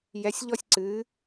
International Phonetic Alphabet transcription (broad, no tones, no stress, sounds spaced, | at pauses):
j ɛ sʲ ʎ ɔ sʲ ǀ ɨ